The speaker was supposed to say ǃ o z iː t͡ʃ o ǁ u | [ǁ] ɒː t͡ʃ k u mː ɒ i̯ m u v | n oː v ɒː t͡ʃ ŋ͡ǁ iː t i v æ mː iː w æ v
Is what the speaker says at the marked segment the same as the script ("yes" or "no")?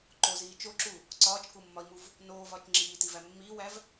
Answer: no